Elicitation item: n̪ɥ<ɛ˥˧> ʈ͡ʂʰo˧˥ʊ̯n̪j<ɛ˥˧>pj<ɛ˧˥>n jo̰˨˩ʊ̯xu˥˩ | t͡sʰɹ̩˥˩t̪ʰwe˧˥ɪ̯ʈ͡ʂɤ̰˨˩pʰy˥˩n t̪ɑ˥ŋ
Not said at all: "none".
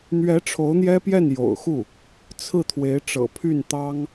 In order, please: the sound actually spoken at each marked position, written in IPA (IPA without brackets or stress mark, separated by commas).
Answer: ɛ˧˥, ɛ˥, ɛ˥˩